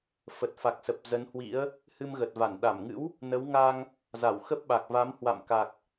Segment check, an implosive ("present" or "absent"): present